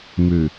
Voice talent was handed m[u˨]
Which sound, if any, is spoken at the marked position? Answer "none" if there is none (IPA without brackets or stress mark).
ʉ˨